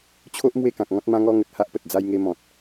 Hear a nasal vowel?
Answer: yes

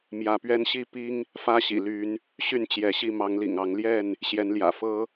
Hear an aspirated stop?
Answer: no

